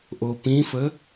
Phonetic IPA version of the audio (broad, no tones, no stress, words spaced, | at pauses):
ʔopĩfə